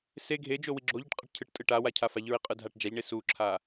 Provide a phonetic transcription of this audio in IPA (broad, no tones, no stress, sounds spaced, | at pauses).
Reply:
s e ɡʱ e d͡ʒ o w i ɡ͡ǁ o ʎ ɯ ʈ qʼ ɛ ʈ cʰ ɯ ʈ tʼ ɯ ʈ a w a cʰ a f a ʎ ɹ i qʼ ɯ dʱ a ʈ d͡ʒ a ʎ ɳ e s u ǁʰ a